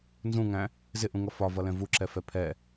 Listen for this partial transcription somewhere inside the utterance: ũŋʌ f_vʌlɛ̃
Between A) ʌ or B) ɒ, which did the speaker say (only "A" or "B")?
B